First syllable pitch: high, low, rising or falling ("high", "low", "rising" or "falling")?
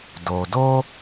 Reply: low